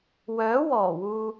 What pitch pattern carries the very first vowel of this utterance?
rising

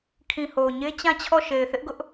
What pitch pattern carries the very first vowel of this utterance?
low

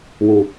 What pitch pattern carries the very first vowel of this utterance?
low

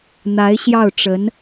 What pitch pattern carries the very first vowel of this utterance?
rising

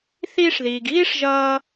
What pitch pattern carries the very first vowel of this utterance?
high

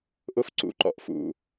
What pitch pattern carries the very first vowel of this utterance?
high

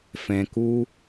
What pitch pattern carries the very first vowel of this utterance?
low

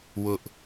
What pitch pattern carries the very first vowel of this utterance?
high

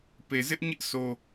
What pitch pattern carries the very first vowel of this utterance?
low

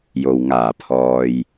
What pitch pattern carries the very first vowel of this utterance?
low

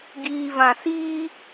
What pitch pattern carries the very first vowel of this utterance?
high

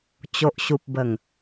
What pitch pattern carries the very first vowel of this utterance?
low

